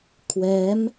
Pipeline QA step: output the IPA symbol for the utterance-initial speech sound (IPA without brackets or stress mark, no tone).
kʰ